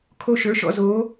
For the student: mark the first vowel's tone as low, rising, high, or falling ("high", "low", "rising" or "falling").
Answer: high